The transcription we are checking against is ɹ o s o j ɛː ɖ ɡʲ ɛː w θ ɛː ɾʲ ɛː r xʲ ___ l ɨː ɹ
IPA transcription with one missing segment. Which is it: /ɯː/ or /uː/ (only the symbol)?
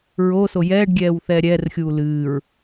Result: uː